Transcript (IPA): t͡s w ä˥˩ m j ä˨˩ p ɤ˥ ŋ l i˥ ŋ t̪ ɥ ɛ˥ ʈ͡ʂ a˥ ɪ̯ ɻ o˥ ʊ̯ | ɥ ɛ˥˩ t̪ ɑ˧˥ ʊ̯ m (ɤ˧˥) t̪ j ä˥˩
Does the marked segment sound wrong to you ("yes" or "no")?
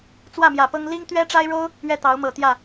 yes